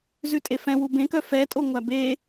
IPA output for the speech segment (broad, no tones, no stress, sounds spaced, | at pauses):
z ʉ tʼ e f ɛ̃ w u b ẽ k œ f ɛ tʼ o ŋʷ æ b e